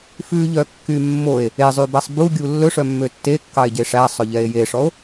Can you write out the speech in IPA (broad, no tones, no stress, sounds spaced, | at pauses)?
f ʉ ʎ œ kː y mː o e̯ | e zˤ y b æ sˤ b u ɡʲ u lː ɵ ʂ œ mː ø tː e kː ɑ e̯ ɟ e ʂ æ sˤ ɵ ʎ ɛ e̯ j e ʂ ɔ o̯